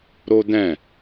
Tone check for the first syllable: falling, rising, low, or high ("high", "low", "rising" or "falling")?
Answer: high